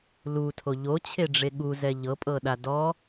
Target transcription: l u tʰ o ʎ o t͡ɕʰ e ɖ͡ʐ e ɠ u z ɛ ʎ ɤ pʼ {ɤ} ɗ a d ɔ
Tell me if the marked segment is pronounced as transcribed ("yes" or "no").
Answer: yes